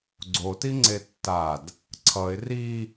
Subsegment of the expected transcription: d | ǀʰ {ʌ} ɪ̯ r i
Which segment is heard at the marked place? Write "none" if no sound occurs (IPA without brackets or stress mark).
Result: ʌ